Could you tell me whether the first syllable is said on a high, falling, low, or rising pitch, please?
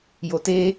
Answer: low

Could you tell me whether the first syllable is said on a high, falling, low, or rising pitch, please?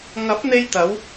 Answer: rising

